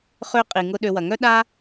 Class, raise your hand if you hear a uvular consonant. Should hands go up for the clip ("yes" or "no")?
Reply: yes